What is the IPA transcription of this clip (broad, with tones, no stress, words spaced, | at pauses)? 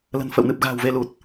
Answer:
lə̤˨˩nfə̰˧˨wnɨ˨˩p̚ ɣa̤˨˩w ve˧lu˨˩t̚